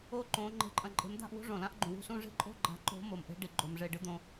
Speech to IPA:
o˥˨ǃõ˨˦ ŋ͡ǃe̤˨˦ǃʼɐ̃˧˩ǃʼe̤˨˦md̪a̤˥˨ʔ wṳ˥ʐõ˩lã˥ʔ ɡ͡ǃũ˩wṳ˥˨sũ˥˨ʐi̤˥ ǃʼo̤˥˨ɡ͡ǃa̤˨˦ǃo̤˨˦ mo˩mʔe̤˥ ɖi˩ ɡ͡ǃo˩mʐe˧˩ ɖɨ˥d̪õ˨˦

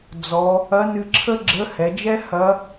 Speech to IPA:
d͡zɔ˩˧ | ɐ˧˥nɨ˧ǁʰə˥ɡ͡ǁə˧˥ hɛ˩˧d͡ʒɛ˥ hɐ˧˥

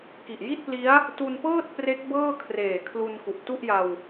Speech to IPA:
ki˨˩ʔji˥˩t̚pli˦˥a̯ | tu˧npɤː˥˩t̚pre˦˥k̚ bɤː˥˩kʰreː˨˩kʰlu˧n ku˨˩ʔtu˥˩ʔja˧w

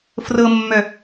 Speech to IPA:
frɤmːœ

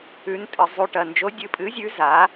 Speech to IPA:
ʉ˧˥n tʼɨ˧zˤu˧ʈɐ˧ nd͡ʒo˧˥dʲɨ˧˥pʼɨ˧˥zʲʉ˧˥ za˧˥

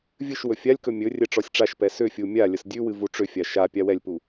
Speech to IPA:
vʲɨʃ wɵfʲalʲkɵ mʲɵ rʲɛʈ͡ʂɔsʲʈ͡ʂaʃpɛ sʏfʲu mʲa lʲəsdʲʉwɨ vuʈ͡ʂʏfʲa ʃa pʲawɛlʲpu

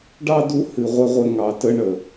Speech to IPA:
ɖɑ˦du˦ hɨ˧ʁʷɘ˦ ʁʷɘ˦ŋɑ˧tə˦ ɳə˨

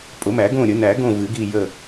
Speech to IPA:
pʼʊ˨˩˦mæ˨˩˦ɡõ˦˨ ɾʲə˨˩˦næ˨˩˦ɡõ˦˨ vɨ˨˩˦ɡi˦˨jə˦˨

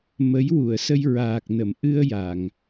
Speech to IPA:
mə˧˥j wu˨˩˨ə̯sə˧j ɹaː˨˩k̚nə˨˩˨m ʔɨ˧ə̯ ja˨˩˨ŋ

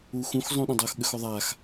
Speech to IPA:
uxũx zˤũɗə̃dˤox ɠʏxoðˤax

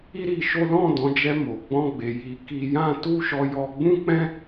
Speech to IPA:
i˦ɾi˧ʃo˦ lɔ̃˦˨ dɔ̃˨˦d͡ʒɛ˧mo˨ɡ͡bɔ̃˧ ɡ͡be˨ ji˨˦ki˧jã˦ tu˦ʃɔ˧jɔ˧ ɡ͡bũ˦k͡pɛ̃˦

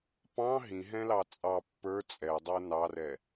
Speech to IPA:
pɑ̃ ɦĩɦɛ̃lɑ t͡sʼɑ pːə˞ t͡sʼɛdˤə˞ nɑrɛ

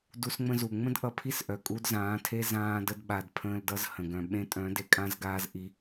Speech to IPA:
du˧sŋ͡mə̃˧zu˨ ŋ͡mə̃˦d ʔʌ˧pʰi˦sʔœ˨ kʼu˧dzãː˨˦tʰe˦ zãː˧də˧dɓa˨d pʰə̃ː˧ldʌ˧zhə̃˨ ɡœ̃˨ ɓẽ˧tʼœ̃˨˦ de˧kʼã˦zɡaː˦z ʔi˧

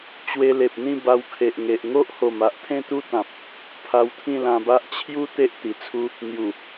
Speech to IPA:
t͡ɕwe˧ le˨p̚ n̪ĩ˥˧ ba˧wkʰe˨ʔŋe˨ʔ ŋo˦ʔho˨˩m a˦ʔt̪ʰẽ˦t̪u˦ t̪ã˨p̚ | pʰa˧wt̪ʰĩ˥˧lã˧ba˦ʔ t͡ɕʰju˦ t̪e˦ʔt̪i˨˩t͡sʰu˦ | n̪ju˨˩

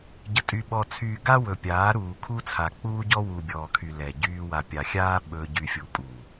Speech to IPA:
ɟə˨tʼy˨ ɓɔ˨t͡sʰyː˨ɡa˦ wɵ˨pʲaː˨˦ɾuː˨ kʰu˦t͡sʰa˨k͡puː˦ɟɔ˦ wu˨bʲɔː˨kʰy˨ lɛ˨ ɟyː˦ wa˨pʲa˨xʲaː˦ ɓɵ˦ ɟy˨fʲu˨pʼu˨

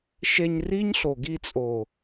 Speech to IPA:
ʃe˧ɲri˦ɲ ɬo˨ɡi˧t͡sʼo˨

